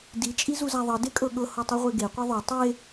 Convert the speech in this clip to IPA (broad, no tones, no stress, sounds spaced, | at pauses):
d i t͡ʃʼ i z u z a ðˤ ɤ d e kʼ ɤ ɠ ɤ h o tˤ u ʁʷ e ɡ e qʷ i ðˤ o tˤ e